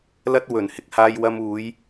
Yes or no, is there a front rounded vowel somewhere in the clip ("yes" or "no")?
no